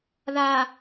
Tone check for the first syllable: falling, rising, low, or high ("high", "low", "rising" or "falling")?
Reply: low